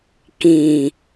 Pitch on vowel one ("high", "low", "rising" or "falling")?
low